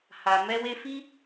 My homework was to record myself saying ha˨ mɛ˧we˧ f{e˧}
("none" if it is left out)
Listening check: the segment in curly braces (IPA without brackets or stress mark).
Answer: i˧